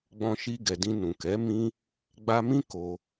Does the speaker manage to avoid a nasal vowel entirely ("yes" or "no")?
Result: no